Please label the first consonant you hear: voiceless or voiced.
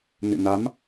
voiced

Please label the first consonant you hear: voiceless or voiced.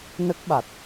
voiced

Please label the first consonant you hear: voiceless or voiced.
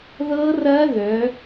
voiced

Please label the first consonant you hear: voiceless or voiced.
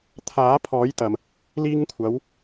voiceless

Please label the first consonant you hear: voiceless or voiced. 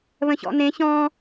voiced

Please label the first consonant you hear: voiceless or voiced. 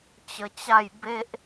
voiceless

